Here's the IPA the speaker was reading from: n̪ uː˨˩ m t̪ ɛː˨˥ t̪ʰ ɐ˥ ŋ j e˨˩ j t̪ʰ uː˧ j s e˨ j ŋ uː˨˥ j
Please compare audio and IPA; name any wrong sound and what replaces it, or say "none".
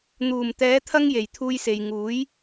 none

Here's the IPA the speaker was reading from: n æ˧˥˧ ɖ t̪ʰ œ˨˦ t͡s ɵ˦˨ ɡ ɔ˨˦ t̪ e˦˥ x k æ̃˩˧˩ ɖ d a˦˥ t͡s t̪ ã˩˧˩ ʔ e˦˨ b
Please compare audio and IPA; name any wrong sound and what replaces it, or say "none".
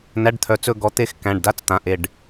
b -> ɖ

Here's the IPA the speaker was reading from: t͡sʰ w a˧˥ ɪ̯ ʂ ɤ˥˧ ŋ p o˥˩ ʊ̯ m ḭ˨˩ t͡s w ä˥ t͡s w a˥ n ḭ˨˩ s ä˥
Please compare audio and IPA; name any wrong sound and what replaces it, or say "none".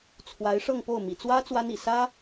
none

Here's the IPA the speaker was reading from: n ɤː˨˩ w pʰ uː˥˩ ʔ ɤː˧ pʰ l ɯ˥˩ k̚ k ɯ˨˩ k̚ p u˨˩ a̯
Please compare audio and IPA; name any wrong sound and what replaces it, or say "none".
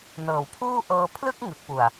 k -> ŋ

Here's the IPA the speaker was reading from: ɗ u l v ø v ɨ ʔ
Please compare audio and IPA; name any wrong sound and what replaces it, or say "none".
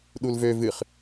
ʔ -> χ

